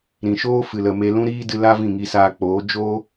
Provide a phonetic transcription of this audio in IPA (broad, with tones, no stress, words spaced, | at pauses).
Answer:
ɾĩ˨ʃoː˦ fɨ˨lə˨ me˧ lũ˦ɾiː˦dɨ˧la˦ vĩ˦˨ŋi˧saː˧k͡poː˨˦ d͡ʒoː˦